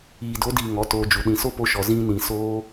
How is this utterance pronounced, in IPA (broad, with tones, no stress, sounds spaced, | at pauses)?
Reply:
iː˨ d o˨˦ d iː˨ ŋ ɔ˨˦ t oː˧ d͡ʒ u˨ ɗ ĩ˨ s o˦ p o˧ ʃ ɔ˨ z ĩ˧ n ĩ˨ s oː˧